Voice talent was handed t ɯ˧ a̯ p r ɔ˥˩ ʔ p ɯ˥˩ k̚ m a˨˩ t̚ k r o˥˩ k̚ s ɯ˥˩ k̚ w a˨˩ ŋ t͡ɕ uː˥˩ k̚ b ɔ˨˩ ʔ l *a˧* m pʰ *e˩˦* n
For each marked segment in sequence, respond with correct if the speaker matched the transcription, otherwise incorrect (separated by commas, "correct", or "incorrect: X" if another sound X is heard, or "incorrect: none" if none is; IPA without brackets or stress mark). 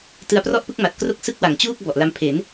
incorrect: a˦˥, correct